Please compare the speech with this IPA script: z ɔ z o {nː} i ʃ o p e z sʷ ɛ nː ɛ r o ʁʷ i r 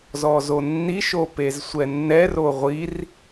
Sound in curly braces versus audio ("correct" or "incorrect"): correct